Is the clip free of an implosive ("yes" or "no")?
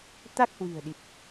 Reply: no